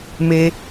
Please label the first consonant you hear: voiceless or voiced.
voiced